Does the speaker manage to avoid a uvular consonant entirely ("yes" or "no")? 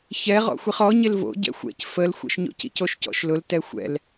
no